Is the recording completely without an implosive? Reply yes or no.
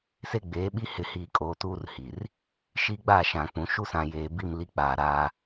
no